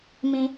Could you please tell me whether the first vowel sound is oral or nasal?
nasal